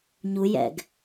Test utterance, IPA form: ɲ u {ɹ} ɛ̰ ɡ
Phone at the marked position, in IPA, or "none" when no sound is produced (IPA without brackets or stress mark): j